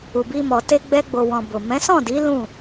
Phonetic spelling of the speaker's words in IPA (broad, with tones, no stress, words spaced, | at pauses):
u˨bi˧mɔ˨ te˧ɡ͡bɛ˧ɡ͡bo˨wɔ̃˨ bo˨ mɛ̃˨˦sɔ̃˦˨di˨˦ lũ˦˨